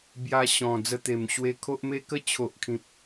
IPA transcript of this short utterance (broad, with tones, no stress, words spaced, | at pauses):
bja˧ɕɔ̃˨˩ d͡zə˧t̪e˨˩mɕwe˧kʰo˦ʔ me˦kə˥˧ t͡ɕʰo˨ʔkʰĩ˨p̚